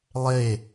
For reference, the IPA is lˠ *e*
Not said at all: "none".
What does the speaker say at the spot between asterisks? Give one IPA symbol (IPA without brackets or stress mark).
e